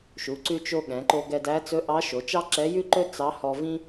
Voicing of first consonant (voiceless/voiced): voiceless